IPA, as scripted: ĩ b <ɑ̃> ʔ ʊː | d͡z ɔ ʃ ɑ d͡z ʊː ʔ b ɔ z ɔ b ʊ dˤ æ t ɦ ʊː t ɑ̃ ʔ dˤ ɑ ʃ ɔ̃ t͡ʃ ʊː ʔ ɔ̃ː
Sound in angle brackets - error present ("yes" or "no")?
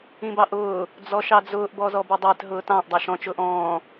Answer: yes